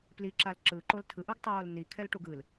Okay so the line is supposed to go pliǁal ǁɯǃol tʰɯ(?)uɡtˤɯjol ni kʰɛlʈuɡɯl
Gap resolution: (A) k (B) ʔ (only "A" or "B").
B